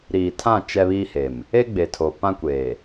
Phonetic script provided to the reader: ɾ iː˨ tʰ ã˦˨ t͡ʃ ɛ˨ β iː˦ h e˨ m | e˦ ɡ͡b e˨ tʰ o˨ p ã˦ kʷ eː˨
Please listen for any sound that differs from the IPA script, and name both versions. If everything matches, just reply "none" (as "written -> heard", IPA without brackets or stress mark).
ɛ˨ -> ɛ˦